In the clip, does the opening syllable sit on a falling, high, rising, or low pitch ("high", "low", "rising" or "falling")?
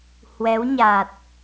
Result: rising